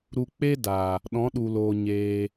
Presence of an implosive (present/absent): present